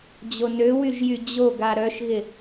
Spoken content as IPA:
d͡ʑ o n ø w y ʒ j y d͡ʑ o ɡ a ɾ œ ʃ ɣ ɪ

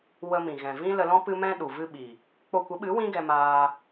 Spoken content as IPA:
w ə˧ m ĩ˨ ɣ ɛ̃˨ v ĩ˦ l ə˧ l ɔ̃˦ p ɨ˧ m ɛ̃˧ ɗ u˨ v ɨ˧ ɓ i˨ | k͡p o˧ kʷ ə˨˦ ɓ ɨ˨˦ w ĩ˦ ɡ ɛ˧ m aː˧

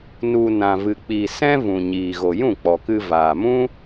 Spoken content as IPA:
n u˨ n ã˨ v ɨ˨ k͡p iː˨ s ɛ̃˦ v ũ˨ ɲ iː˨ ɣ o˨ j ũ˦˨ k͡p ɔ˨ k ɨ˧ v aː˨ m ũ˦

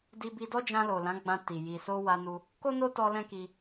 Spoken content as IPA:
d i˧ b i˧ d ɔ˦ d͡ʒ ã˧ l o˨ l ã˨˦ ɡ͡b ã˧ t i˨ j i˨ s o˧ w a˧ n u˧ | k o˦ n o˦ t ɔ˧ l ɛ̃˦ k i˧

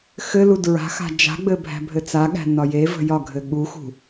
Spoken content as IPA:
x ɘ l u d ɹ a̤ x a̤ d͡ʒ a̤ ɡ͡b ɘ bʱ æ̤ bʱ ɘ t͡s a ɠ æ̤ n ɒ j e v ə̤ j ɒ ɡʱ ɘ ɠ u x ṳ

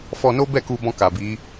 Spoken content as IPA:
f ɔ˧ n o˦ b ɛ˦˨ k u˧ b ɔ̃˧ k a˨ b i˨˦

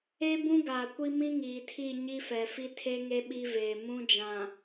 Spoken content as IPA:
e˦ b ũ˦ ɡ aː˨ kʷ i˦ m ĩ˦ ŋ iː˨ tʰ i˦˨ ɲ i˦ f ɛ˨ f i˦ tʰ e˦ ŋ e˦ ɓ i˦ v eː˨ m ũ˦ d͡ʒ ã˨

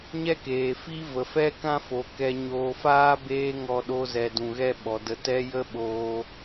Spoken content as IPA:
ɲ ɛ˦ k eː˨ f i˦ v ə˨ f ɛ˦ k ã˦ f o˨ k ɛ˧ ɲ oː˧ f aː˦ b eː˧ ŋ ɔ˧ ɗ o˧ z ɛ˨ d ũ˨ ɣ ɛ˦ ɓ ɔ˨ d ə˧ t ɛ˦ j ə˦ ɓ oː˧

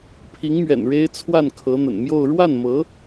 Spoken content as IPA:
pʰ i˧˥ ŋ m ɥ ɛ̰˨˩ n ɻ e˥ ɪ̯ t͡sʰ w a˥˩ n kʰ ɤ˧˥ n̪ ə̰˨˩ n m j o˥˧ ʊ̯ ɻ w a˥˩ n m ɤ˧˥

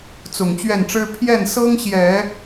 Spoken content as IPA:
t͡s ʊ˨˩ ŋ t͡ɕ ɥ ɛ˥˩ n ʈ͡ʂ ɻ̩˥ pʰ j ɛ˥˩ n s ɤ˥ ŋ ɕ j ɛ˨˩˦

